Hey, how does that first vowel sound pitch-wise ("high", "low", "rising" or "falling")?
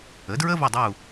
rising